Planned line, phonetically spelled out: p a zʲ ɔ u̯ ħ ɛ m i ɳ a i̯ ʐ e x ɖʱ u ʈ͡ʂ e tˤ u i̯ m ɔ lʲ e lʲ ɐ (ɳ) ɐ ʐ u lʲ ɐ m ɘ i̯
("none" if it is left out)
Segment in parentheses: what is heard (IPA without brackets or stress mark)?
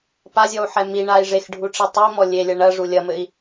ɳ